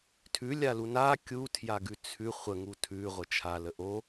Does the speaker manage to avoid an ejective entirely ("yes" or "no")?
yes